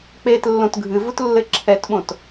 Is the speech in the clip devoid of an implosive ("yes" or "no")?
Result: no